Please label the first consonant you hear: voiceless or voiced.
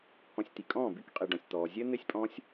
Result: voiceless